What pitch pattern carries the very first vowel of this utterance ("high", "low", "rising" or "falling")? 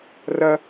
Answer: high